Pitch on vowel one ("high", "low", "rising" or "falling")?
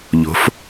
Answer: rising